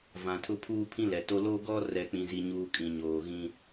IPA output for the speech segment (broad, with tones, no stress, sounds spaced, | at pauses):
v ã˨ tʰ ʊ˦ pʰ uː˦ pʰ ĩ˦ l ɛ˨ t o˦ l o˦ ɡ ɔ˦ r ɛ˨ k͡p ĩ˦ z i˦ ɲ uː˦ kʼ ĩ˨ ɲ oː˨ ɣ ĩ˦